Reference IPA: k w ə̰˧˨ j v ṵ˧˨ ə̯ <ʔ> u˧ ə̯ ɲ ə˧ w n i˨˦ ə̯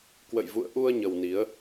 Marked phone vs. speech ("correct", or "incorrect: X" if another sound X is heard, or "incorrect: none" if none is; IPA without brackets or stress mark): correct